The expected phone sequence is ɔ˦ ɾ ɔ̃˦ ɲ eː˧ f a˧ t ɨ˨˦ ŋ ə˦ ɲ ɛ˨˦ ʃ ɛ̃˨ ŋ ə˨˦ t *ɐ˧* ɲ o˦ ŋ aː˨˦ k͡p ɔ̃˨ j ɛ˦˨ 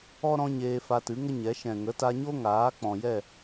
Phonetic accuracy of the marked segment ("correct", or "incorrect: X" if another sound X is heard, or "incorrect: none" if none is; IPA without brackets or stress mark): incorrect: a˧